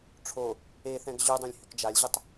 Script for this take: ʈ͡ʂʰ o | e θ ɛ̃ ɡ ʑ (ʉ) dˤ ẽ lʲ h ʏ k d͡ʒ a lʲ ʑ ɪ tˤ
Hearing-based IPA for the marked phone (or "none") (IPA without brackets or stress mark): ʉ